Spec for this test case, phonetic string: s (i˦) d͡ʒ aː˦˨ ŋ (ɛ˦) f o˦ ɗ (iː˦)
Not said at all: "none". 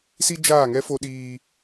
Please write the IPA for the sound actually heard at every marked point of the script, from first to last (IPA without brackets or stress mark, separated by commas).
i˦, ɛ˦, iː˧